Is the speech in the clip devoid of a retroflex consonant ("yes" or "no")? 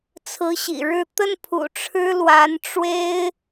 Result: no